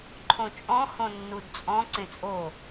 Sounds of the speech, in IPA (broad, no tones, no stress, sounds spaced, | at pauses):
ǃʰ õ t͡ʃʼ ɔ̃ h õ nː u d t͡sʼ ɔ̃ ǀ ẽ t͡sʼ o